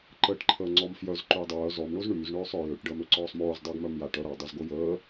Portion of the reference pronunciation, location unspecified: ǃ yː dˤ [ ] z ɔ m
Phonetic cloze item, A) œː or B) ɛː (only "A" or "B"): A